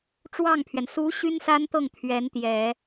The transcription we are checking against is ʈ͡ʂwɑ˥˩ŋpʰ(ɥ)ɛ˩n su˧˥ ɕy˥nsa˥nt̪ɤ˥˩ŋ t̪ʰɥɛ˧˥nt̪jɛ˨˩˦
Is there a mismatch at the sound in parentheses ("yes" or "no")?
no